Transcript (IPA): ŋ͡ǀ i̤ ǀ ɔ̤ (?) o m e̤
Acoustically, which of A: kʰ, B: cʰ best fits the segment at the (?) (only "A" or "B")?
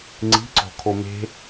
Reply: A